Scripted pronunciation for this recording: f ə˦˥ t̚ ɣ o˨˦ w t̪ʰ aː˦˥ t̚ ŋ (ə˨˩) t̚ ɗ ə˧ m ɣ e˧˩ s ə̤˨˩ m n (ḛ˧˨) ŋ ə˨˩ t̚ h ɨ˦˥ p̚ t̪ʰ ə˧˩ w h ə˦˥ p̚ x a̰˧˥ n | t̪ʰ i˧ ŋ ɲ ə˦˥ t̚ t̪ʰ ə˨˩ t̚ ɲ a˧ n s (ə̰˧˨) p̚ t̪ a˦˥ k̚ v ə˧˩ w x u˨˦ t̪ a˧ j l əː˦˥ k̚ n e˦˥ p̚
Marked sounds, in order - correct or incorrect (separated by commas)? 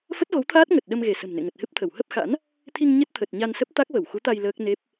correct, correct, incorrect